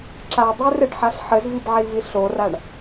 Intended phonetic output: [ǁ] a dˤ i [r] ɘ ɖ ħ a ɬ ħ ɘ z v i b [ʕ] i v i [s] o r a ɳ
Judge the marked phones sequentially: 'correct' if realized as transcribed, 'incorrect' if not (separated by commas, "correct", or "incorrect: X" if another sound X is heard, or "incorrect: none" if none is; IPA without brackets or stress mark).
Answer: correct, correct, correct, incorrect: ɬ